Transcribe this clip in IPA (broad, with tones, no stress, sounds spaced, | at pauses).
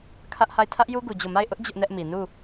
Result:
kʰ ä˦ ʔ h a˦˨ ɪ̯ tʰ ä˦ ʔ j u˦ ɡ u˨ d͡ʑ o˦˨ m a˦˨ ɪ̯ ʔ ʊ˦ ʔ d͡ʑ ʊ˦ ʔ n ɛ˦ ʔ m i˨ n u˦˨